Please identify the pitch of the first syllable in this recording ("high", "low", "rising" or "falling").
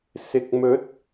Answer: low